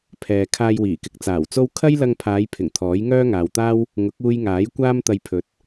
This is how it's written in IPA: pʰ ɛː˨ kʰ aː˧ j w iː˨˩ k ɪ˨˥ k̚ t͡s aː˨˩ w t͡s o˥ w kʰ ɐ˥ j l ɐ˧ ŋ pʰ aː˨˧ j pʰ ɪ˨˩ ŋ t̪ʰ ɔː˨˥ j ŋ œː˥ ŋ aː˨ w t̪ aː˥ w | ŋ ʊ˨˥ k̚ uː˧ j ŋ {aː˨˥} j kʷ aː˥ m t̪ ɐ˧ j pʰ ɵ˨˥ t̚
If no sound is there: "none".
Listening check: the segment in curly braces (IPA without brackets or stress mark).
aː˨˥